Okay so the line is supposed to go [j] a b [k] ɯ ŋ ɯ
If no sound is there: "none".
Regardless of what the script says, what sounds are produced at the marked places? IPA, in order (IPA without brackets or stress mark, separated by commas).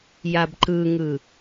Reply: j, ǃ